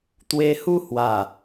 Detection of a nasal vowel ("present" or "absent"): absent